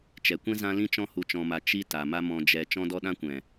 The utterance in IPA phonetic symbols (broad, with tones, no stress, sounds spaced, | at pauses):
t͡ʃ ɛ˨ kʷ ɛ̃˦ z ã˦ l ĩ˦ t͡ʃ ɔ̃˦ h u˧ t͡ʃ ɔ̃˧ m a˧ t͡ʃ i˦ t a˨ m a˦ m ɔ̃˧ d͡ʒ ɛ˧ t͡ʃ ɔ̃˦ d ɔ˦ ɗ ã˦ kʷ ɛ̃˨